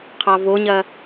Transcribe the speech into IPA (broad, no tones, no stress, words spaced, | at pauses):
qʰɑvoɲɐ